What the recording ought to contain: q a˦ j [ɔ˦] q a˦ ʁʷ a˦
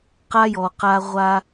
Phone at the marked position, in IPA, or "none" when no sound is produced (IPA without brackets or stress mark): ɔ˨